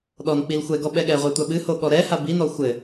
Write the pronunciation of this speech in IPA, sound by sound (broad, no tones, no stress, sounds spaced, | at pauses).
ɗ ɔ n k͡p i l xʷ ɛ ɡ ɔ ɓ ɛ ɠ ɛ ʁʷ a tʷ a ɓ ɨ h o ɠ ɔ ɾ ɛ h a b i n ɔ xʷ ɘ